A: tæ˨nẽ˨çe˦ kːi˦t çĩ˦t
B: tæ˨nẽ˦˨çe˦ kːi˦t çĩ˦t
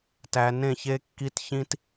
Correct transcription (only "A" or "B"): B